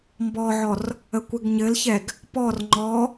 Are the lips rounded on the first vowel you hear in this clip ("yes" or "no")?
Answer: yes